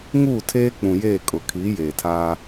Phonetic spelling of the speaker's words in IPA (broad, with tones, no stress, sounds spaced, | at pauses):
ŋ uː˦˨ tʰ eː˦ k͡p ũ˨ j eː˦˨ kʼ ʊ˨ kʰ iː˨˦ j eː˨ tʰ aː˦